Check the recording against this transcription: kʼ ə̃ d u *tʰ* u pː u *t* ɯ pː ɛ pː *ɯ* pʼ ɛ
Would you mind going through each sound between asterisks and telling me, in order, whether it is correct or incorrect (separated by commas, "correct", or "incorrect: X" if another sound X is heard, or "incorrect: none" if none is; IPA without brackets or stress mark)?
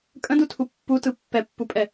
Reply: correct, correct, incorrect: u